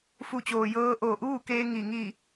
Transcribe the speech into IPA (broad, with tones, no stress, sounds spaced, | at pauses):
f u˧˩ t͡ɕ oː˩ j ɤː˧ ʔ oː˧˩ ʔ uː˥˨ k eː˧ ŋ i˧˩ ŋ i˧˩